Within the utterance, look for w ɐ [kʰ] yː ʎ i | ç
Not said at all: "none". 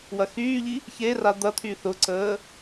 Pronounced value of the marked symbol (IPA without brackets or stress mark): x